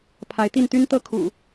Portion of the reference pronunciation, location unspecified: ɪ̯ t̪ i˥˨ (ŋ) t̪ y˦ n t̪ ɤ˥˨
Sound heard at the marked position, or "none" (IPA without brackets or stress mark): n